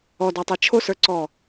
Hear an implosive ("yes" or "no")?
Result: no